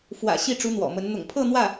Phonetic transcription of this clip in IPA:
f w ä̰˨˩ ɕ i˥˩ ʈ͡ʂ u˧˥ n̪ w ɔ̰˨˩ m ə˧˥ n n̪ ʊ̰˨˩ ŋ pʰ ɤ˥˧ n̪ w ä˥˩

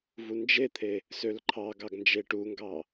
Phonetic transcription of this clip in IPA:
v u n d͡ʒ e t̪ʰ e | s ø l ǃʰ ɑ ɡ ɑ ɡ n d͡ʒ e ʈ u ŋ ɡ ɑ

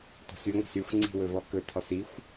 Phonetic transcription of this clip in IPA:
t ɔ̤ s y ŋʷ a̤ s y xʷ ŋ͡ǀ i̤ w ɵ v ɔ k ɵ tʰ ɔ s i xʷ

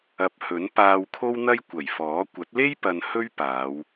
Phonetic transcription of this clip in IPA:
ɐ˨ p̚ h ɵ˨˥ n p aː˧ w kʰ o˥ w n̪ ɐ˥ j kʷ ɐ˨˩ j f ɔː˨˥ kʷ ɐ˨˥ t̚ l e˥ j p ɐ˧ n h ɵ˥ ɥ p aː˨˧ w

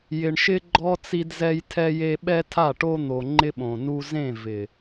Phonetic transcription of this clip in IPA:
j ɪ˨ ɳ ʃ ɪ˦ ɡ͡ǃ ɔ˦ t͡s i˦ d z ɛ˦ j tʰ ɛ˦ j e˦ ɓ ɛ˦ tʰ a˦˨ ʈ o˦ n̪ o˨ ŋ͡ǃ ɪ˦ ɓ õ˨ n u˦ z ẽ˦˨ v ɪ˨

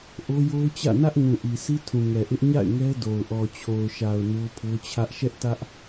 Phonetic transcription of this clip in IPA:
ʔ o˦ j o˦ ʊ̯ t͡ɕ ä̰˦˨ n ä˦ ʔ ŋ ũ˨ ʔ i˨ s i˦ tʰ ũ˨ ŋ ɛ˨ ʔ ɪ˦ ʔ ɲ a̰˦˨ ɪ̯ ŋ ɛ˦ d o˨ ʊ̯ ʔ ɔ˨ t͡ɕʰ o˨ ʊ̯ ʃ a˨ ʊ̯ n o˦ pʰ o˦ t͡ɕʰ ä˦ ʔ ʃ ɛ˦ ʔ t ä˦ ʔ

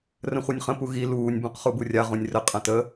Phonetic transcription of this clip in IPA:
r ə̃ χʷ ɤ nʲ χ ə̃ p u ɣ i l uː nʲ b ũ q χ u b u rʲ a ʁ ũ nʲ r ə qʼ ɐ̃ t ə

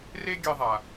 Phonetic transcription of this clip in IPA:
r e˥ ɡʲ ɛ˧ ðˤ a˩

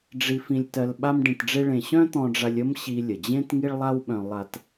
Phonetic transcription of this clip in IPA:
ɖ͡ʐ i˧ f ĩ˧ lʲ t ɜ˧ l ɓ a˥ m ɖ ĩ˧ t ɖ͡ʐ e˥ ɭ ẽ˧ ɕ œ̃˥ t̪ ɔ̃˧ ɖ͡ʐ a˧ lʲ ə˥ m ɕ i˧ lʲ ə˩ d͡ʑ ẽ˥ t ŋ i˥ ɭ lˠ a˥ w ɓ œ̃˧ lˠ a˧ t

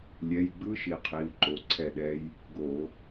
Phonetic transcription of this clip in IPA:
lʲ ɛ˩˧˩ j ɡ͡b ɯ˦˥ ʃ i˩˧˩ qʰ i˩˧˩ u̯ ǃ o˩˧˩ ǀʰ ɛ˥˩ ɗ ɛ˦˥ j | ɡ o˧˩˧

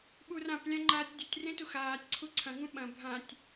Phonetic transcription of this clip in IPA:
ɓ u r ã p lʲ ã ŋ͡ǃ aː tʲ dʲ ɵ tʲ r ẽ t u x aː tʲ ǀʰ u ǀʰ ɐ̃ ŋ ũ ɓ ɐ̃ bʱ ã tʲ

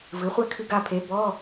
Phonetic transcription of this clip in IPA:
v ɨ˩˥ χʷ ɛ˥˨ kʰ ɨ˧ ɡ a˧ pʰ e˩˥ b ɔ˧˥˧

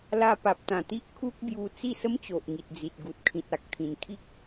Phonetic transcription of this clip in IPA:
l a˧ p a˨ p̚ t̪ ã˨˩ t̪ i˦ ʔ kʰ u˦ k̚ b j u˧ t͡s i˥˧ s ə˦ m t͡ɕ o˨ ʔ ŋ i˨ t̚ d͡z i˨ t̚ ɡ u˨ t̚ kʰ ĩ˨ t̚ a˨ k̚ t̪ʰ ĩ˨˩ n kʰ i˦ k̚

